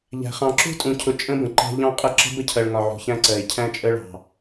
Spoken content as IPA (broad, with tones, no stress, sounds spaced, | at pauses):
ʎ æ̤˨ χ ɑ̃˨ ǁ ṳ˦ tʼ ũ˨ cʰ ʊ˨ t͡ʃʼ ə̃˦ b ə̃˨ ǃ æ̤˦ ʎ ɑ̃˦ qʼ ə˦ ǁ ə̤˦ b ə˦ cʰ ɜ˨ ɭ ŋ ɒ˨ ʕ ṳ˨ ç æ̃˦ ǀ ɜ˨ ɪ̯ cʰ æ̃˦ t͡ʃʼ ə˦ ɭ ɑ̤˨